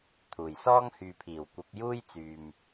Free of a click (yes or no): yes